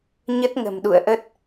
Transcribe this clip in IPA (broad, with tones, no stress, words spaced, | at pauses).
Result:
ɲə˦˥t̚ŋə̤˨˩mɗṵ˧˨ə̯ʔə˦˥t̚